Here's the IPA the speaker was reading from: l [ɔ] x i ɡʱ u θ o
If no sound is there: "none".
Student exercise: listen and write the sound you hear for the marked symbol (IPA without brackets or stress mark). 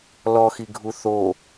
ɔ